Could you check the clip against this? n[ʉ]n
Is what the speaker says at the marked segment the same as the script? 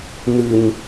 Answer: yes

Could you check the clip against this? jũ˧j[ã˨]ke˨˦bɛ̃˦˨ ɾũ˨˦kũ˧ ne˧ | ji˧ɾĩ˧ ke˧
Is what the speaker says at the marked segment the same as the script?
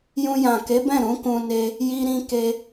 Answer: yes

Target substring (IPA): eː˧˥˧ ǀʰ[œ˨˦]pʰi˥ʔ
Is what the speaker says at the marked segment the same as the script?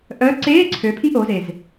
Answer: no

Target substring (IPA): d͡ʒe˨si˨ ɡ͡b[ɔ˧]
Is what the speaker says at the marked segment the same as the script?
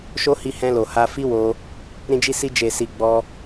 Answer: yes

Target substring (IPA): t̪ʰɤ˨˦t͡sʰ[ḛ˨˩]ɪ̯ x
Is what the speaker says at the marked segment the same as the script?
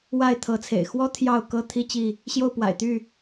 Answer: yes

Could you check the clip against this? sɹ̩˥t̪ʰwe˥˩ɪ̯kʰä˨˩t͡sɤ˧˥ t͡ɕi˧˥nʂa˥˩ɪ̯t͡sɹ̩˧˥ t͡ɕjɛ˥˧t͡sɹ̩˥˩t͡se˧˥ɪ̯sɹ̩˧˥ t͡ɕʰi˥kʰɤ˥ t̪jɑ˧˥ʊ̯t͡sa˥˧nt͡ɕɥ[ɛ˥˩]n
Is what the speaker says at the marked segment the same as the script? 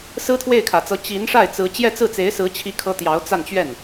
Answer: yes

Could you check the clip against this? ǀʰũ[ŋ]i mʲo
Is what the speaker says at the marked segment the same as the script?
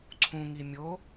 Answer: yes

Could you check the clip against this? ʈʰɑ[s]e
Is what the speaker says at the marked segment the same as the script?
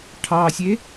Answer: no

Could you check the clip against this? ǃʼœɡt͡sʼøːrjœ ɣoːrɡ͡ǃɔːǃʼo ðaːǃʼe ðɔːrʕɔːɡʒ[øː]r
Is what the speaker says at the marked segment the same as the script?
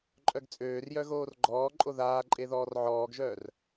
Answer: no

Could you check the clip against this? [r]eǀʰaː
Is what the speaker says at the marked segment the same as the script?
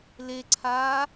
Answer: no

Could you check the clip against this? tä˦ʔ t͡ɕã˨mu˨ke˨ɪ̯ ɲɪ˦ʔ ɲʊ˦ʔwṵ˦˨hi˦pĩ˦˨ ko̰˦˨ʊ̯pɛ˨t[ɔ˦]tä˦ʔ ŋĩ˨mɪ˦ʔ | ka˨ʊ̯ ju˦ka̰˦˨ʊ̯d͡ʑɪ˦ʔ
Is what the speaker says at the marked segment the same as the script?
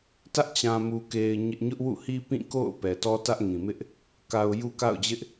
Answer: yes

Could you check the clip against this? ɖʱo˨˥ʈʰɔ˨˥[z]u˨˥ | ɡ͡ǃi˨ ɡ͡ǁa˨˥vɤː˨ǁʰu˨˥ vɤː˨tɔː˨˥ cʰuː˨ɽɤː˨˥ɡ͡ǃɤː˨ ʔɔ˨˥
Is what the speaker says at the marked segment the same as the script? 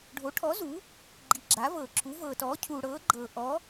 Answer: yes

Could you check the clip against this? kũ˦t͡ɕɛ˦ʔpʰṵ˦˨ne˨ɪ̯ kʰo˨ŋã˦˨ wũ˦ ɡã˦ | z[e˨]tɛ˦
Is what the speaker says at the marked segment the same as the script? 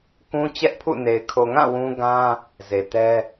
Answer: yes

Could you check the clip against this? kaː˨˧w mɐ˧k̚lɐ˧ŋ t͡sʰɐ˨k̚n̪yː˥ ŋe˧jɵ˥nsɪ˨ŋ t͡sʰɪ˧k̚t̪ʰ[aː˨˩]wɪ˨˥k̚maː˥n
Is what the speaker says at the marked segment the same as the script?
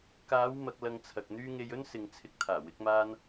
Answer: yes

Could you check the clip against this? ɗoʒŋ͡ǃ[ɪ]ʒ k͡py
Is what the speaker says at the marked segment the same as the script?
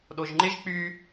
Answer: yes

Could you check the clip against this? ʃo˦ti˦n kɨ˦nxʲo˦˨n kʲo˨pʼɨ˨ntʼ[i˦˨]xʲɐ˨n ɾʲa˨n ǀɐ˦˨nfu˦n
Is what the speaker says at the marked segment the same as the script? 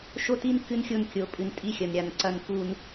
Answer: yes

